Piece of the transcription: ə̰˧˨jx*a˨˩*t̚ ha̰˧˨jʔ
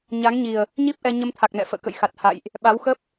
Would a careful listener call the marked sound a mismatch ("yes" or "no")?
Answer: no